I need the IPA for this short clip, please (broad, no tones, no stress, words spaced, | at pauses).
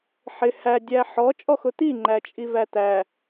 ħɪ hædʲæ ħɔt͡ʃʼɔxʊ t̪i ŋ͡ǃæt͡ʃʼivæt̪æ